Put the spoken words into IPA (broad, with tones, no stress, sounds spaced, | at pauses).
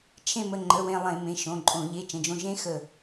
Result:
t͡ʃʰ ẽ˧˩ m ə˩˧˩ ŋ͡ǃ ə˩˧˩ w ẽ˧˩ lˠ ẽ˧˩˧ m ẽ˩˧˩ ʃ õ˩˧˩ ǃʼ õ˧˩˧ ʎ e˩˧˩ t͡ʃ ə̃˩˧˩ d͡ʒ õ˧˩ ʒ ẽ˧˥ x ə˧˩